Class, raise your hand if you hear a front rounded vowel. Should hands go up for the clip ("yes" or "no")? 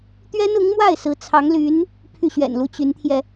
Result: yes